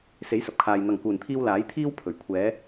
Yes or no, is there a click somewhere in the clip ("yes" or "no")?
no